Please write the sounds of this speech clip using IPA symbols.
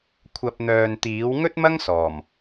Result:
kʷʰ ɐ˨ p̚ n̪ œː˨ n t̪ iː˨˥ w ŋ ɵ˥ t̚ m ɐ˥ ŋ s ɔː˨˩ m

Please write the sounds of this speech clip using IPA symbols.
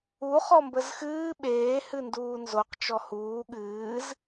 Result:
u χ ɔ m b ə z x ɨː ɓ eː h ɨ n d uː n z o q t͡ʃ ɔ h uː ɠ ɨː z

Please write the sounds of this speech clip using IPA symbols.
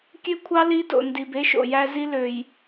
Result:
kʲ ø˦ kʷʰ ɑ˦ l i˦ d o̰˨ n d i˨ b e˦ ʃ o̰˨ j æ˦ z i˦ l ø˨ j

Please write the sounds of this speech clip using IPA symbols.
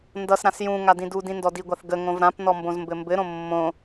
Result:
n d ʌ s ɾ ã s j ũ ŋ a d ĩ d u d ĩ n d ɔ d i ɡʷ a θ ɡ ə ŋ õ v ɾ ã p n ɔ m b õ z m b ɘ m b ɘ ɾ õ mː õ

